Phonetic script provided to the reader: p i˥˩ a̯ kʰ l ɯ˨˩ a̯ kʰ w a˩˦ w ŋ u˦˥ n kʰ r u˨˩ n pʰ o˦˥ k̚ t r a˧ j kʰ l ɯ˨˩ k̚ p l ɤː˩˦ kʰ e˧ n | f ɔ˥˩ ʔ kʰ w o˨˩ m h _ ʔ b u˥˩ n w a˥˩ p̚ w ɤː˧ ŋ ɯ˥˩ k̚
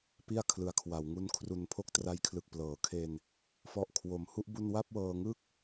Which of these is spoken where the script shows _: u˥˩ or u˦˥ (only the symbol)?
u˥˩